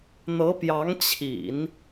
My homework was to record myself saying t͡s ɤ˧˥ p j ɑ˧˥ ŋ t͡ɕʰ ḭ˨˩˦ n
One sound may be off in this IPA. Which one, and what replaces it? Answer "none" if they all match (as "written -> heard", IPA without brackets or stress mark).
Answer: t͡s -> n̪